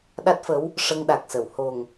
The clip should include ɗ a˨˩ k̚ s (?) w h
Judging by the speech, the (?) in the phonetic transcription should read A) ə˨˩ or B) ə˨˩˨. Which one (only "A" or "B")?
B